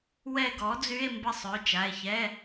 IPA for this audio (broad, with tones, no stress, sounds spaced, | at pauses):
w ɛ˦˨ ɡ ɔ˩˥ d͡z y˧˥˧ e̯ m b ə˦˨ sˤ ø˩˧˩ t͡ʃ a˩˧˩ e̯ ç ɛ˧˥˧